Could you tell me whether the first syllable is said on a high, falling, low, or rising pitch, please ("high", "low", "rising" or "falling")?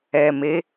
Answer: low